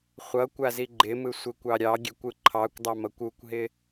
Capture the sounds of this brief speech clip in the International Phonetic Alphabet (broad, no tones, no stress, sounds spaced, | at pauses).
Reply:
χʷ ʌ kʷ a z i ɡ͡ǃ ɪ m ɯ sʷ ɪ kʷ ɑ ɾʲ ɑ ɡʲ e kʷ ɯ ǃʰ ɑ kʷ dˤ ɑ m ʌ kʷ u kʷ ɦ ɪ